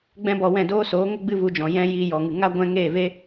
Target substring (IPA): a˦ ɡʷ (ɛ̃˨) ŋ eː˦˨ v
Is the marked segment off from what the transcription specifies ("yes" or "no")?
yes